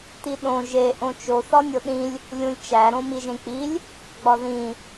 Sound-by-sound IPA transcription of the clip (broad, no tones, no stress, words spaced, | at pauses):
tiɗõ ʒe ʔõt͡ʃo θɒnʲoɗĩlʲ | lʲũlʲt͡ʃæ ɾõmi ʒẽk͡pilʲ | ɡ͡bɒðĩ